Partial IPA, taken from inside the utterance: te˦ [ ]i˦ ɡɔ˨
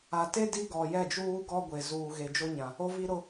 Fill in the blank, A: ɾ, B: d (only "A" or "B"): B